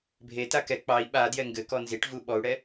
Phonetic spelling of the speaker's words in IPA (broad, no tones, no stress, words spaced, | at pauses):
bʱeta kɛ k͡pɑi̯ ɓadjɛ ŋɡɘkɔ nziʈvu ɓɔu̯ɽɛ